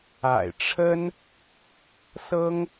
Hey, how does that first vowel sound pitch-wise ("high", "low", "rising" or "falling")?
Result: low